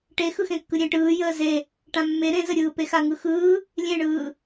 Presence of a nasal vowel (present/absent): present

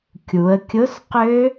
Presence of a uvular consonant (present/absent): present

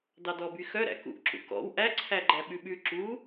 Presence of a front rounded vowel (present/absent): present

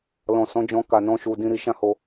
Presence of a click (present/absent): absent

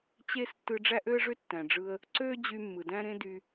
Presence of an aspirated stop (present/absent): absent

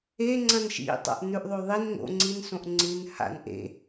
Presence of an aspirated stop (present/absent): absent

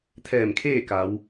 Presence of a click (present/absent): absent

